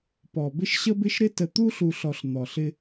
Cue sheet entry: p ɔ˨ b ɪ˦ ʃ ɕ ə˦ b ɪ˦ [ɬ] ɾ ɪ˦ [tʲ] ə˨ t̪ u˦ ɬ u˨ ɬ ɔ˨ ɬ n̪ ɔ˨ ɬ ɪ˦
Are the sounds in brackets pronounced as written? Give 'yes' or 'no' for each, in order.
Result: no, no

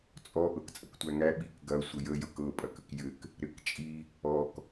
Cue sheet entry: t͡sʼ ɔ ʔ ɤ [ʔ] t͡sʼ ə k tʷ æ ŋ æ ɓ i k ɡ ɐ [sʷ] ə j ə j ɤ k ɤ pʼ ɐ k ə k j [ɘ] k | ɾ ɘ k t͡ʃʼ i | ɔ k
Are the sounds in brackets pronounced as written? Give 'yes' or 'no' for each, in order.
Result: no, yes, yes

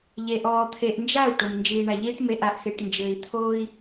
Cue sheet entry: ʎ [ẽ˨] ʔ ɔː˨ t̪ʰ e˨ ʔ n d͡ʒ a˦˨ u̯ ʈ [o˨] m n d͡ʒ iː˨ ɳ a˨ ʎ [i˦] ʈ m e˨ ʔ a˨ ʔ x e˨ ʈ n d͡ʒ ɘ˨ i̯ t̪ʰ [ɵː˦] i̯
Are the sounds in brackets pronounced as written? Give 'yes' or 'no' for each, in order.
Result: no, yes, no, no

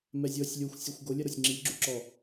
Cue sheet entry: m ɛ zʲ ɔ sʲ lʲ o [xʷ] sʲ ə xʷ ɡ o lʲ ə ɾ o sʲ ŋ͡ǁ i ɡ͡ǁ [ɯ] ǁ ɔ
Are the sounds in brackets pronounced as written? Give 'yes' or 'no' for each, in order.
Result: yes, no

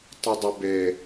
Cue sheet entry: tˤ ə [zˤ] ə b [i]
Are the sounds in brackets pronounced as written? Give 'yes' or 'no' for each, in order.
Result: no, no

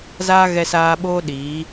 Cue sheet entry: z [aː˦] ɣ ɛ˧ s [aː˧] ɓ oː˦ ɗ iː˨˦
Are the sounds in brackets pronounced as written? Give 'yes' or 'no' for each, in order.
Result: yes, yes

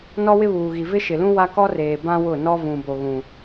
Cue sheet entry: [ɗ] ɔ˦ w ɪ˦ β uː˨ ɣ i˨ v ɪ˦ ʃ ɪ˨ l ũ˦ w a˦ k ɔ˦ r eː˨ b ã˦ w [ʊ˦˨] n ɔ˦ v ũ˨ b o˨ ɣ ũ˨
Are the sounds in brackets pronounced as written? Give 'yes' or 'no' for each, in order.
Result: no, yes

